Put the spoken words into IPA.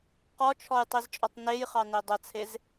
q ɔ t͡ʃʰ ɔ j tˤ i z t͡ʃʼ ɔ tˤ n e j χ ɑ n e dˤ ə t͡sʰ e z

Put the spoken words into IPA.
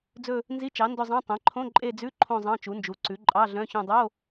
d͡z ɵ˦˨ | n z i˧˥˧ t͡ʃ ɑ˩˥ n d ɵ˦˨ zˤ ɑ̃˧˥˧ tˤ ɛ̃˩˥ ǃʰ õ˧˥˧ ǃʼ e˦˨ d͡z ʉ˧˥˧ ǃʰ õ˦˨ zˤ ɑ̃˧˥˧ t͡ʃ u˩˥ n d͡ʒ u˩˥ ǀ ʉ˩˥ ǃʼ ɑ˧˥˧ ɮ œ̃˧˥˧ ç õ˦˨ dˤ o˧˥˧

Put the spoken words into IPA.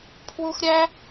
pʰ w u˧ x ɾʲ æ˦

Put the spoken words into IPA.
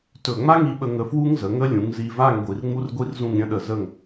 t ɵ˧˩ ŋ͡m a˥ ŋ i˧ ɓ ə˧ ŋ ə˧ f w u˥ ŋ z ə˩˧ ŋ ə˥ lʲ ũ˩˧ ŋ z i˧ v a˥˧ ŋ ɡʷ i˧ r ŋ͡m u˥ r ɡʷ i˥ r z ũ˥˧ ŋ ɾʲ ə̃˥ ɗ ə˧˩ z ə˥˧ ŋ

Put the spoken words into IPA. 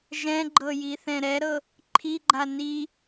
ʒ ɛ̃ ɡ͡ǃ ɤ j i θ ɛ̃ ɾ ɛ ɾ ɤ | ǃʰ i ɡ͡ǃ a n i

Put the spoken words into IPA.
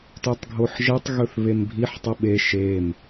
t ʉ tˤ ɡʱ o ħ ʒ e tˤ ɣ ɵ θ β e m bʱ i ħ tˤ u ɓ e ʃ e m

